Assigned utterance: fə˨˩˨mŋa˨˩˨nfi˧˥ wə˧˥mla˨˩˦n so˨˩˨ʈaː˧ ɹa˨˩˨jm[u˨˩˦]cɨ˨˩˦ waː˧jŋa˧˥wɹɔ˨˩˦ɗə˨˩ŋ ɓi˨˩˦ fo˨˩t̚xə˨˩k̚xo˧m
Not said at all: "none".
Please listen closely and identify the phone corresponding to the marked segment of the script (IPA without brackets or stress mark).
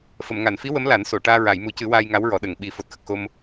u˨˩˦